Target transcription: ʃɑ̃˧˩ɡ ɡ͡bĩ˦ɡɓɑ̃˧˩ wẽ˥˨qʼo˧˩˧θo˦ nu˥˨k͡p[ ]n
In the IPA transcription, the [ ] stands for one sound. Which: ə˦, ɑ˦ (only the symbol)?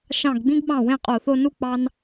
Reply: ɑ˦